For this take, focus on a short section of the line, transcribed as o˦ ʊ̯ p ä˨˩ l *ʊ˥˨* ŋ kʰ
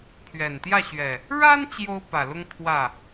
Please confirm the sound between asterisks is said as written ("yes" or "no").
no